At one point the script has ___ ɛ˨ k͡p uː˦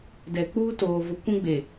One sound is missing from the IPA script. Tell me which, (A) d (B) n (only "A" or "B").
A